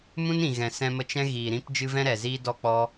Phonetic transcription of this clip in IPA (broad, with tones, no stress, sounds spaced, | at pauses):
m ũ˦ n ĩ˨ ɣ ɛ̃˨ s ɛ̃˧ m ə˧ t͡ʃ ɛ̃˦ ɣ iː˨ ɾ ĩ˦ p d͡ʒ ɨ˦ v ɛ̃˦ ɾ ɛ˨ z iː˦ d ɔ˦ k͡p ɔ˦